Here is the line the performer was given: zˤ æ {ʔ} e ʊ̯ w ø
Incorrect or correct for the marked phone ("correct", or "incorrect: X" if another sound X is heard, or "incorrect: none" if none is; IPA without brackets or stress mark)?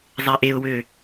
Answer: correct